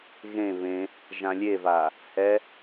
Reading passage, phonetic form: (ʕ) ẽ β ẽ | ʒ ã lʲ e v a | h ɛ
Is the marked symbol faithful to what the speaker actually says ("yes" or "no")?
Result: no